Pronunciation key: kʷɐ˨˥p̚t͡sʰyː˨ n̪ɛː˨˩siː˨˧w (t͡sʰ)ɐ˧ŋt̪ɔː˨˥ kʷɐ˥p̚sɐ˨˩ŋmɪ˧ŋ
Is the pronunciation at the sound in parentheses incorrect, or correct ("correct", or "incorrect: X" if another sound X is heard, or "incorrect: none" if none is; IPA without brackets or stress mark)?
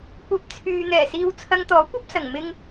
correct